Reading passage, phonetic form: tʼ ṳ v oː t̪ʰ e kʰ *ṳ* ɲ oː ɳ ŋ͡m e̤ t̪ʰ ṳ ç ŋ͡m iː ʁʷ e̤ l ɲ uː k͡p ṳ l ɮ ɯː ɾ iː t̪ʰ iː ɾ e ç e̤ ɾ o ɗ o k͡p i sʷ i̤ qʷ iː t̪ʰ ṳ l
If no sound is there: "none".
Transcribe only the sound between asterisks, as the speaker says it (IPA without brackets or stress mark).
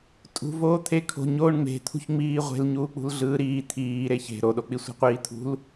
o̤